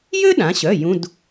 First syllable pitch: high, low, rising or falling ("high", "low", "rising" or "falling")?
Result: high